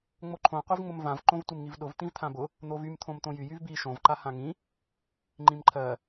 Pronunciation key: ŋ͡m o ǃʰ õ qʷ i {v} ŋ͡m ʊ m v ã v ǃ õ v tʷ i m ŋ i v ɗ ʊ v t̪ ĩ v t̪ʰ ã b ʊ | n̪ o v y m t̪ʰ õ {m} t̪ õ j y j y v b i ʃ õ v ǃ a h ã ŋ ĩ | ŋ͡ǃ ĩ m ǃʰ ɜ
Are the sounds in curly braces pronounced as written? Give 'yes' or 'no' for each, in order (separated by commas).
yes, yes